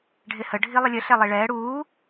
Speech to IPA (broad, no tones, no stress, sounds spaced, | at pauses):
ɖʱ ɪ h ə ɖʱ i lˠ ə lʲ ə ɬ ɛ lˠ i ɭ ɛː ɽ uː